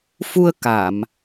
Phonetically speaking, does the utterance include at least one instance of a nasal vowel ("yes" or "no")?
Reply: no